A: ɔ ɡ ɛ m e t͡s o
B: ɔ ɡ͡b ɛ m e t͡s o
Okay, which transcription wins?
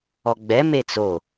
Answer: B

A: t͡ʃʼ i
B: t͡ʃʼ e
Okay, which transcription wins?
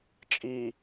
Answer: A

